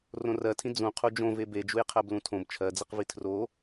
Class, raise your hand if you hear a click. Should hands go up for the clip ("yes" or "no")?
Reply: no